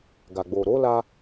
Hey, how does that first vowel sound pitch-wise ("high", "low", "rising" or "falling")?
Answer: low